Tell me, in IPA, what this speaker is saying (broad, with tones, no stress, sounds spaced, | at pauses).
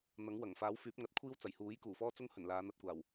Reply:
n̪ ɐ˨˥ ŋ w ɐ˨˩ ŋ f aː˨˥ w f yː˨˥ p̚ ŋ ɐ˨˥ t̚ kʷʰ iː˥ w t͡s ɐ˨˩ j h uː˨˥ j k uː˨˩ f ɔː˥ t͡s ʊ˥ ŋ h ɵ˨˩ n l aː˨˧ n̪ ɐ˨ t̚ kʷ aː˨˩ w